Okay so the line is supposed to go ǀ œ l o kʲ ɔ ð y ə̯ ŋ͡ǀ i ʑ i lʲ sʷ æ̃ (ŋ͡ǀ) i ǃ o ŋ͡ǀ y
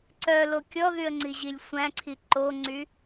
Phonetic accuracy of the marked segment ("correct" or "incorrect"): incorrect